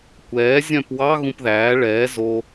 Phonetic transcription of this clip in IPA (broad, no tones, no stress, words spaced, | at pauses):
kʷɛː zʲœ̃pwɑ ɣũpðæː ɭɛː zo